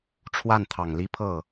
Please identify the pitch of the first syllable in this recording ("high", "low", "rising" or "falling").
falling